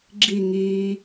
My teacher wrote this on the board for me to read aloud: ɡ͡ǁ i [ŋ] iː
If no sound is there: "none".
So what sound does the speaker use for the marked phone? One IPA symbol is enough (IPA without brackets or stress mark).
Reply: ŋ